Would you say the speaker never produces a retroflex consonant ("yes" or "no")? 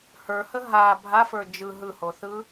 yes